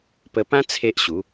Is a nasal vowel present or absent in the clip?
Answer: present